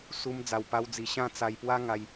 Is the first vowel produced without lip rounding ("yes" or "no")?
no